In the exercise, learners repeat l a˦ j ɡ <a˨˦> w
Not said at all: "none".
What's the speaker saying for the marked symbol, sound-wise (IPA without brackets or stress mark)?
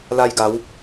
a˨˦